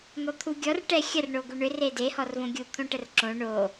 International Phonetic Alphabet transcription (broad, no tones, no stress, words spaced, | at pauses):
n̪ɔt̪ʰuɡʲɔr ʈɛxʲər ɳoɡuɳʏ rede hɔrvõɡʲu t̪ʰõʈərǁõ ɳo